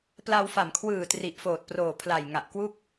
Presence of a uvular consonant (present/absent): absent